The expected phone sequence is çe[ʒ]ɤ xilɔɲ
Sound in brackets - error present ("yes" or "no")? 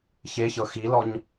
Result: yes